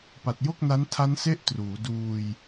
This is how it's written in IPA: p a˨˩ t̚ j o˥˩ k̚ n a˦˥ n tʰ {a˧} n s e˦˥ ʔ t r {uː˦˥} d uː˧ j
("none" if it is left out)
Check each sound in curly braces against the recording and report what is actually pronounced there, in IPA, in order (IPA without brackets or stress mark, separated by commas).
a˦˥, uː˩˦